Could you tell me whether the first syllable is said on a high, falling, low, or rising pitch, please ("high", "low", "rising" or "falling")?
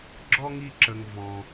high